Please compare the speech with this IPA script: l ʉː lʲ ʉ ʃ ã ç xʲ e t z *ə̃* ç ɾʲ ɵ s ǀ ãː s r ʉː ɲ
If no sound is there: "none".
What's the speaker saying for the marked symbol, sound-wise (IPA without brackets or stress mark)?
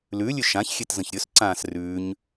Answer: ə̃